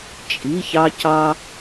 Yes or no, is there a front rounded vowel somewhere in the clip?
no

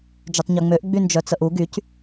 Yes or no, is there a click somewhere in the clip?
no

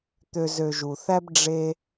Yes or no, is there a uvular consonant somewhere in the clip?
no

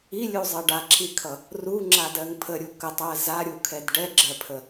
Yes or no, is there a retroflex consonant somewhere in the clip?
yes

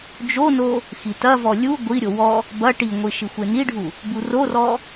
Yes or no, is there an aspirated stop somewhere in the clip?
no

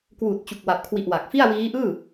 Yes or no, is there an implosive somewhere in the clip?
no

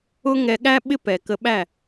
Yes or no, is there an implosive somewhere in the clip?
yes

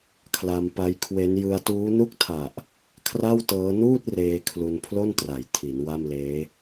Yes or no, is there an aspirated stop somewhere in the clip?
yes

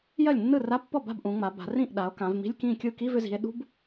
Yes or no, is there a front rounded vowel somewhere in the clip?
yes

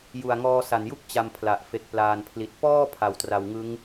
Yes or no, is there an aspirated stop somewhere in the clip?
yes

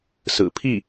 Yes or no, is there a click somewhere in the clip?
no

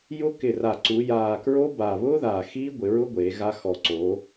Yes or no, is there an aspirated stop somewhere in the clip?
no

